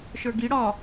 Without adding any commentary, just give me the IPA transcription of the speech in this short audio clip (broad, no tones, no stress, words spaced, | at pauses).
ʃə˞ɡi ɽɒ